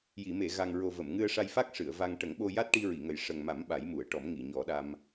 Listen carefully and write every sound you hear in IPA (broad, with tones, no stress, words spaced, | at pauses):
ji˨˩˨me˨˩˨ɣa˨˩ŋɹo˨˩ və˨˩˨mŋɨ˧ə̯ʂa˧j fa˦˥k̚ʂɨ˨˩˨ə̯ va˧ŋ ʈə˨˩˦ŋɓo˧ja˦˥t̚ ʈi˧ɹi˨˩˨ŋə˨˩j ʂə˨˩ŋma˨˩˦m ɓa˨˩˦jmu˨˩˨ə̯ʈɔ˨˩˦m ŋi˨˩˨ɲɔ˨˩˦ɗa˧m